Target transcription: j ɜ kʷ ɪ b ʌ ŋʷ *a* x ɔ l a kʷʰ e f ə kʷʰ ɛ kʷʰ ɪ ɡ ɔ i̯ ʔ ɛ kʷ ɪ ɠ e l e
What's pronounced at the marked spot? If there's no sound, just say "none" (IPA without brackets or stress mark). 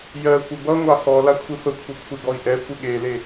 ɑ